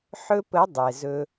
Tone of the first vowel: high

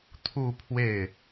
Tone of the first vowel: falling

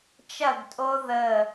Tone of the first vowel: falling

